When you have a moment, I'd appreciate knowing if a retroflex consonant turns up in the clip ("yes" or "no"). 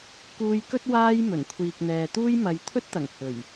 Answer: no